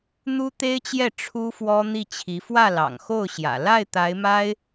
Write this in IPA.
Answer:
n̪ u˥ t̪ e˥ ɪ̯ t͡ɕ j ɛ˥˩ ʈ͡ʂʰ u˥ f w ɔ˥ n̪ i˥˩ t͡ɕʰ i˧˥ f w ä˥˩ l ɑ̰˨˩ ŋ x o˥˩ ʊ̯ ɕ j ä̰˨˩ l a˥˩ ɪ̯ t̪ a˧˥ ɪ̯ m a˥ ɪ̯

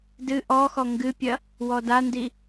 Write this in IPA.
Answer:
d ɨ ʔ ɔ x ɔ ŋ ɡ ɨ pʲ ɐ | w ɔ d a n d i

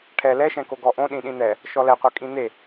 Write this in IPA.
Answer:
ʈʰ ɛ l ɛ ʃ ɛ̃ k o ɡ ɔ ʔ õ ɗ ĩ ɗ ĩ n̪ ɛ | ʃ ɔ l ɛ qʷ œ kʼ ĩ n̪ e

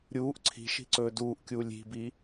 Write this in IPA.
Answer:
ɾʲ uː ʔ ǀʰ i̤ ʃ i̤ ǀ ɵː d uː ʔ kʲ uː lʲ i̤ b i

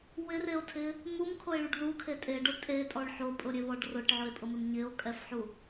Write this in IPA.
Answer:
w ɪ r e o̯ tʰ ɪ | m u m kʰ o e̯ ɭ u ɖ ð u kʰ e tʼ e ɖ ʊ tʼ e tʼ ɔ ɭ ħ o pʼ ʊ ɾʲ e β ɔ ɖ r ʊ ʈ ʕ ʊ e̯ pʼ ʊ m ɪ m ɲ ɪ o̯ kʼ ɛ f ħ u

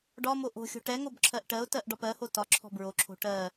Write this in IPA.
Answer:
ɖ ɒ m o ʔ o̤ xʲ o̤ ʈ ɛ ŋ o b ǁʰ ɜ ʔ ʈ ɜ ʊ̯ t ɜ ʔ ɖ ɒ p ɜ h o t ɒ ǁʰ ɔ̤ b ɹ o ǁʰ o̤ ʈ ɜ

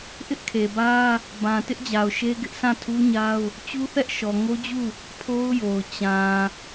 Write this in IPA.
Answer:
ʔ ɪ˦ ʔ kʰ e˨ b ä˦ | b ã˨ t ɪ˦ ʔ d͡ʑ a˨ ʊ̯ ʃ e˦ ɡ ɪ˦ ʔ sʰ ã˦˨ tʰ u˦ ɲ a˦ ʊ̯ | t͡ɕ u˦ θ ɛ˦ ʔ ʃ ɔ˨ ŋ o˦ d͡ʑ u˦˨ | pʰ o˦ ʊ̯ j o˨ ʊ̯ t͡ɕ ã˨

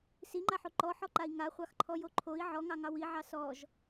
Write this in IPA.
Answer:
s i ŋ͡ǃ a ħ o ǃ ɔ ħ ɔ ǃ a i̯ ŋ a χʷ ɑ x ǃʰ ɔ j o ǃʰ o i̯ ʕ ɔ ŋ ɑ ŋ ɑ w i ʕ ɑ s ɔ ʒ

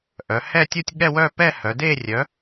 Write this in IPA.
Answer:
ʔ œ˩˧ h ɛ˥˧ tʲ u˥˧ tʲ ɠ ɛ˥˧ w œ˥˧ p ɛ˥˧ h œ˩˧ d e˥˧ rʲ œ˨˥

